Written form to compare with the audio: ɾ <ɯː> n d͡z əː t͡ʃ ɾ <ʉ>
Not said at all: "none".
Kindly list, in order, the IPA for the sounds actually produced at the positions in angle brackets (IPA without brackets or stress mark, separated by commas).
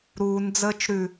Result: uː, ʉ